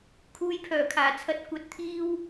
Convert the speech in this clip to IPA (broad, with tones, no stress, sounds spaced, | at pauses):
kʰ uː˧ j pʰ œː˨˩ kʰ aː˨˩ t͡sʰ ɐ˧ t̚ kʷ ɐ˨˥ t̚ t̪ʰ iː˧ w